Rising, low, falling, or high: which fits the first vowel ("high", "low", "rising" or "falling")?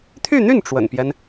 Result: falling